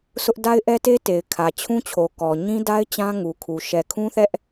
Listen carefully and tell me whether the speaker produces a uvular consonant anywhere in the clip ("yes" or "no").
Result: no